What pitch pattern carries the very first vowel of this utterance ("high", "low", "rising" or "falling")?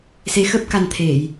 rising